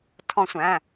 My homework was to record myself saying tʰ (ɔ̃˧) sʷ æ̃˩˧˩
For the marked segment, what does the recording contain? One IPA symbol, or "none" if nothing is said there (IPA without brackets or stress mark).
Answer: ɔ̃˧